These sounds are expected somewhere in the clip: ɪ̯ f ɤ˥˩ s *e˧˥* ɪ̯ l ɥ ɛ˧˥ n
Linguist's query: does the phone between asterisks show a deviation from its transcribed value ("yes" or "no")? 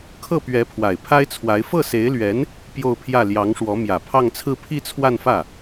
no